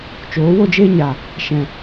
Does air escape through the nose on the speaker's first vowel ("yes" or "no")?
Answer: no